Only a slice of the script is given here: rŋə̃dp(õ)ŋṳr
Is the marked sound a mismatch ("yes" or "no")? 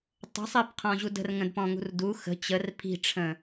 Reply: yes